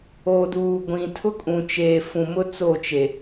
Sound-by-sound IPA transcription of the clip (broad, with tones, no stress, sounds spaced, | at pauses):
o˨ d uː˨ ɡʷ ĩ˨ tʰ ʊ˦ kʼ ũ˨ t͡ʃ eː˨ f ũ˨ m ʊ˦ t͡s o˦˨ t͡ʃ e˨